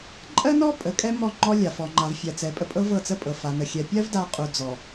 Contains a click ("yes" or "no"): yes